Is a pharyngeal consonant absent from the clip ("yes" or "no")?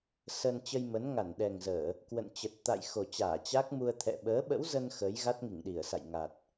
yes